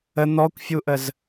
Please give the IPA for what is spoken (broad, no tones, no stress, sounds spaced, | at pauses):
ə n̪ ɔ kʷ fʲ u ʔ ə z